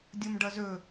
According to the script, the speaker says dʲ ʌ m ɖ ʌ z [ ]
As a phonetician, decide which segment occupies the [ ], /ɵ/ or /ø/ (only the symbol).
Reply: ɵ